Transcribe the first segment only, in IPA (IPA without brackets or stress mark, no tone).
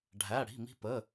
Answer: ɖʱ